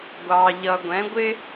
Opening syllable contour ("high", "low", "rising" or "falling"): low